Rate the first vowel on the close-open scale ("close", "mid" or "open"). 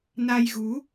open